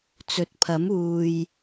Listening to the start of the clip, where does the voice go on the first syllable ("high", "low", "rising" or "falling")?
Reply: rising